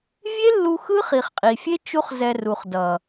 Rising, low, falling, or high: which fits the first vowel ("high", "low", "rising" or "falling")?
high